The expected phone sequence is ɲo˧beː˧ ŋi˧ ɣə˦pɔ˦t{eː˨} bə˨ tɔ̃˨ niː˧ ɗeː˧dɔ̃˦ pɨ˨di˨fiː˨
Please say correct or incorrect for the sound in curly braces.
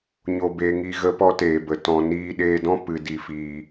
correct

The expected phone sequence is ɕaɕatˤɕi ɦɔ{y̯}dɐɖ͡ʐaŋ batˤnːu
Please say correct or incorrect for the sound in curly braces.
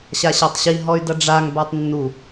correct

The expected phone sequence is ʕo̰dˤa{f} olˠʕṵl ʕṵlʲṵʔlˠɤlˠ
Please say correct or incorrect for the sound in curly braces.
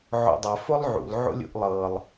correct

